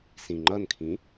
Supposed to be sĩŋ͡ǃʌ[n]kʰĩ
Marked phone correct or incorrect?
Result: correct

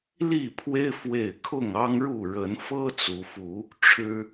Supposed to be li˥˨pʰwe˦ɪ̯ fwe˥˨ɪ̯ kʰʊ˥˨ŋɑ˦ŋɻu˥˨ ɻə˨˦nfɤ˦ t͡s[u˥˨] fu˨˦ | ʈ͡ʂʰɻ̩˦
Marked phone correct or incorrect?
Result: incorrect: u˨˦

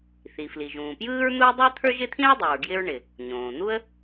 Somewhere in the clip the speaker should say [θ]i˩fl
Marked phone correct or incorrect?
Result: correct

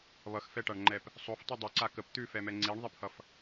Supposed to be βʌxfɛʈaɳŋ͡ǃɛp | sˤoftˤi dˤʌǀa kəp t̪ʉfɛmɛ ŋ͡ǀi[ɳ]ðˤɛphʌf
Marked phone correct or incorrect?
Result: correct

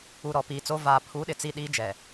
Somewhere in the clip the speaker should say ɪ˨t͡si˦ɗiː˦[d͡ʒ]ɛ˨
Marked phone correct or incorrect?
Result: correct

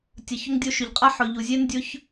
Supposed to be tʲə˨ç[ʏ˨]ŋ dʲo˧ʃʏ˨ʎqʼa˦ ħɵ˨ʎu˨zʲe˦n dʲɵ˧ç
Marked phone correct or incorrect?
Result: incorrect: ʏ˧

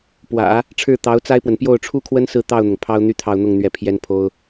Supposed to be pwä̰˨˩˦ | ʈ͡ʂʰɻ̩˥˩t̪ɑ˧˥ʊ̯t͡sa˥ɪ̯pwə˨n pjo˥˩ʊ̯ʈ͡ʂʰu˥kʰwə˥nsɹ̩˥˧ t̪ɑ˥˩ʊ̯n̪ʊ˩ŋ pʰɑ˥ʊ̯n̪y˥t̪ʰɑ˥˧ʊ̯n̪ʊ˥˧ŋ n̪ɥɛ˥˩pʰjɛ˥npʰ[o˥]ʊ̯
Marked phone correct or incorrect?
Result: correct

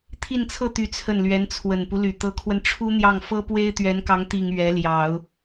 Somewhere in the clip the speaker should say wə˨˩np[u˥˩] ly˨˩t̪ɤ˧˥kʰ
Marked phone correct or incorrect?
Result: incorrect: u˦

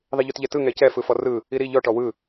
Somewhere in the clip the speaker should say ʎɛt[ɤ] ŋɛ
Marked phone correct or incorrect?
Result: incorrect: ɯ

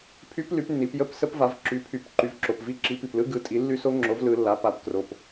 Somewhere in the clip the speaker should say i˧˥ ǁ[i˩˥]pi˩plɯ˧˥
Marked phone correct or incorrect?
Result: correct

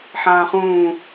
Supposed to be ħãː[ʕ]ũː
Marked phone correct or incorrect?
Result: incorrect: χ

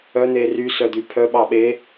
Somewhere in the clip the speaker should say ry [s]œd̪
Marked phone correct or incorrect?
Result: correct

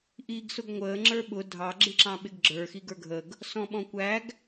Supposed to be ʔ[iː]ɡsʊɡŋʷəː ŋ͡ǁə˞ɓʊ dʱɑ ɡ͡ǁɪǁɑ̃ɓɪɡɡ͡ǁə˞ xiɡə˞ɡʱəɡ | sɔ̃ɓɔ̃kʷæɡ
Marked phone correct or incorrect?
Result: correct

